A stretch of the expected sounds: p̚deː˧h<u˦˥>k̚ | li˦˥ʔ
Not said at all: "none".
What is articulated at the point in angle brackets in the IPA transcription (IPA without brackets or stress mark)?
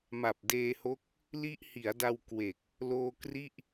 o˦˥